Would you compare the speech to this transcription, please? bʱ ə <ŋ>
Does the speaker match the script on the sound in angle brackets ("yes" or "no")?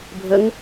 yes